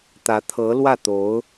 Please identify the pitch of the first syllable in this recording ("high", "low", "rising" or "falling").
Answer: rising